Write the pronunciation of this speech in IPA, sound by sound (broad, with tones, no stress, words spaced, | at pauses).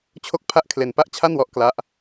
t͡ɕʰo˥˩k̚pʰa˥˩ʔ kʰle˧npa˥˩ʔt͡ɕʰa˥˩nwɔ˦˥ʔ kla˦˥ʔ